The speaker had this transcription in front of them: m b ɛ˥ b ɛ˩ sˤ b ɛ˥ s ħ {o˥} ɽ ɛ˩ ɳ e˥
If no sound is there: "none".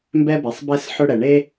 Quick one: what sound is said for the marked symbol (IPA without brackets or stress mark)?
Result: ɵ˥